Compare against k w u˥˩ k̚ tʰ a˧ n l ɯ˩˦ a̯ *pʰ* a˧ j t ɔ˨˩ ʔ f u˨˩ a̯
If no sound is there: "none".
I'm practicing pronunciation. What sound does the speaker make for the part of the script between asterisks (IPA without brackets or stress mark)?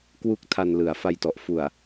f